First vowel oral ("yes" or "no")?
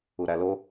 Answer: yes